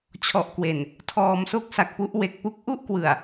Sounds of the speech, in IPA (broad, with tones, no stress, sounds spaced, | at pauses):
t͡ɕʰ ɔ˨˩ ʔ k w e˨˩ n | tʰ ɔː˨˩ m s o˥˩ k̚ s a˨˩ k̚ p u˦˥ ʔ w e˨˩ k̚ p u˥˩ k̚ ʔ u˥˩ ʔ k w ɯ˨˩ a̯